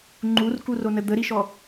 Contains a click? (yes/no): yes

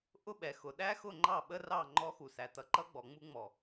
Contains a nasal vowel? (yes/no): no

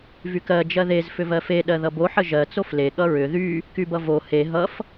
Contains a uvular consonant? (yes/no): no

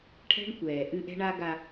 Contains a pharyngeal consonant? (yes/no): no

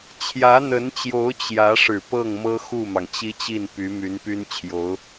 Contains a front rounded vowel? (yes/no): yes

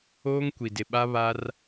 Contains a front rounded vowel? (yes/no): no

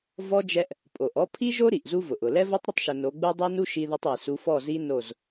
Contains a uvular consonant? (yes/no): no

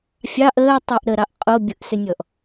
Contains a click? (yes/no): no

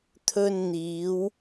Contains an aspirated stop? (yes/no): yes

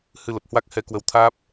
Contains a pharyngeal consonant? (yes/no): no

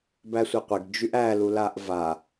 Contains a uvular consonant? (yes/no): yes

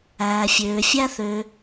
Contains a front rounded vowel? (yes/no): yes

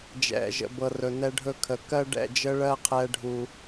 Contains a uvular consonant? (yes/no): yes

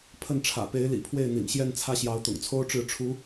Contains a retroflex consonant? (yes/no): yes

